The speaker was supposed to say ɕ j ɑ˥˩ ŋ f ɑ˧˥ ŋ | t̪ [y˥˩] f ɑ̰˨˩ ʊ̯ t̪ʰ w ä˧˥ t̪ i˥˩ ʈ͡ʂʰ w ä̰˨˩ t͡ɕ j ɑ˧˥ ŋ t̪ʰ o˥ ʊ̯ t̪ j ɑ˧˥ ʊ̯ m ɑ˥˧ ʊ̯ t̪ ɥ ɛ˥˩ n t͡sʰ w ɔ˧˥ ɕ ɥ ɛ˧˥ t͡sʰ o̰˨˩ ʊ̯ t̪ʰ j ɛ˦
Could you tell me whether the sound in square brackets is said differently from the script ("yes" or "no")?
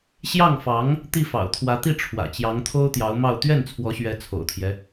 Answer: yes